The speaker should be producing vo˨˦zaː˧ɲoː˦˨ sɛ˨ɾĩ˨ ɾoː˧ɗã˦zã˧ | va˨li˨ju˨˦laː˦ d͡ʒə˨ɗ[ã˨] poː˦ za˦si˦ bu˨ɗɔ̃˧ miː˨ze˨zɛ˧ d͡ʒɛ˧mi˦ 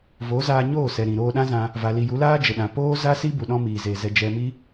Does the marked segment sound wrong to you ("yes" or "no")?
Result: no